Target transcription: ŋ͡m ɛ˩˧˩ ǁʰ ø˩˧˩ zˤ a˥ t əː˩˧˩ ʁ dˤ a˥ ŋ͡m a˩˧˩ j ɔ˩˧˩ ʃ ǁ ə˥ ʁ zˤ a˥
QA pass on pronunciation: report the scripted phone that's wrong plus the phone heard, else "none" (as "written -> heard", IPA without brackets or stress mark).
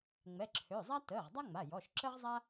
none